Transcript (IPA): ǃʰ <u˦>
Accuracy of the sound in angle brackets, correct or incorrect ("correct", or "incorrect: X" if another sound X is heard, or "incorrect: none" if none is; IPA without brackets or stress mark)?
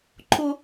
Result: incorrect: ʊ˦